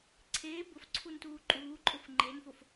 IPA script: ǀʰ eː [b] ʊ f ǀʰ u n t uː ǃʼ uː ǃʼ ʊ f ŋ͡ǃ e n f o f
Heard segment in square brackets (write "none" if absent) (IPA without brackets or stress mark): b